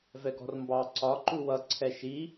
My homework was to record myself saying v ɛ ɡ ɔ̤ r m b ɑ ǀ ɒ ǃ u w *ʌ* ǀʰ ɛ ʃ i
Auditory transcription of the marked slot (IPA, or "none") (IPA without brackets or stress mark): ʌ